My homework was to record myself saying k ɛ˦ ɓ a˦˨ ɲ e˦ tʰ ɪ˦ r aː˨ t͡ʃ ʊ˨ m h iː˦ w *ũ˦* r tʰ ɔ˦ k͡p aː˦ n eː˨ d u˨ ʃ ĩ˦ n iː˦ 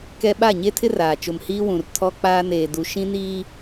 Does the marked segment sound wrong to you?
yes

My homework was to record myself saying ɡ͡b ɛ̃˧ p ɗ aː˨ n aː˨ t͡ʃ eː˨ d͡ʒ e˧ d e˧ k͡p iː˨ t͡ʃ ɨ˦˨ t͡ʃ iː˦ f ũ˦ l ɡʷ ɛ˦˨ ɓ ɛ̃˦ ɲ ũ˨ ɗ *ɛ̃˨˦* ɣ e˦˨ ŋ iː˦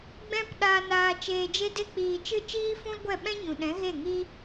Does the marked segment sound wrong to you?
no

